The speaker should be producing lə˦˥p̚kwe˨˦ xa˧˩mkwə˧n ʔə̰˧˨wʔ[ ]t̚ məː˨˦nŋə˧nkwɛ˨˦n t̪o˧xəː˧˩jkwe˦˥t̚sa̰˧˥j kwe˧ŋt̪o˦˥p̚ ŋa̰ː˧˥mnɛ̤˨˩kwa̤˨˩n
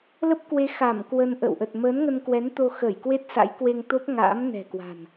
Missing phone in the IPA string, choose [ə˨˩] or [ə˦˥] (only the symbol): ə˨˩